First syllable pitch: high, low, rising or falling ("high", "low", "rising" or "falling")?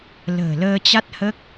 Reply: low